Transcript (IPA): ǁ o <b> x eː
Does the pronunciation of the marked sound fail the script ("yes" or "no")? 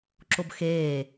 no